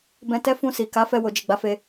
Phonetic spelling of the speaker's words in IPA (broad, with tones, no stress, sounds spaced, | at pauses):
b ɛ̃˧ t ɛ˦ f ũ˧ s i˨ k a˨˦ f ɛ˧ w o˨ d͡ʒ i˨ ɡ͡b a˨˦ f e˧